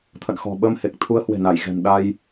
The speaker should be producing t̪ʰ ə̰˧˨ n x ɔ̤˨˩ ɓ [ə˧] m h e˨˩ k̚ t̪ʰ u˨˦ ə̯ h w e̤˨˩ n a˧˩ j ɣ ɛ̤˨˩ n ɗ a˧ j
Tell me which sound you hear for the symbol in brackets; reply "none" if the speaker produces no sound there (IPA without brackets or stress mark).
ə˧